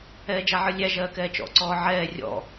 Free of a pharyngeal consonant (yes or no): no